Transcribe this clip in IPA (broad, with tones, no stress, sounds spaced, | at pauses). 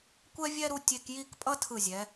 kʷ ɛ˥ vʲ ɛ˥ ɾ u˧ tʲ e˧ k j i˥˧ k pʼ ʌ˥ tʰ ɯ˧˩ zʲ ɛ˩˧